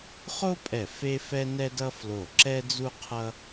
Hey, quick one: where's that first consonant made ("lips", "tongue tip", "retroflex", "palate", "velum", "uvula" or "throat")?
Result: uvula